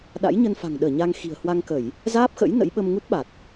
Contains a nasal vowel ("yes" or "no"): no